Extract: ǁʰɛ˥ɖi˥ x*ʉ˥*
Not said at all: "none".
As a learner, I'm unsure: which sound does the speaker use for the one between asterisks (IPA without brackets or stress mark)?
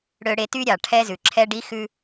ʉ˥